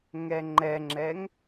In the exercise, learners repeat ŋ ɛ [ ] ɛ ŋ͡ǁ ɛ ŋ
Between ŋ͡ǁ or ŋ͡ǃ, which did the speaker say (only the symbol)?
ŋ͡ǃ